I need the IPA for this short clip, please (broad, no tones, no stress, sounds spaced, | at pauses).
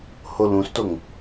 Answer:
h o l ũ s t o ŋ